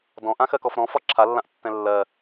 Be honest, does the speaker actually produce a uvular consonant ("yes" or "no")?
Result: no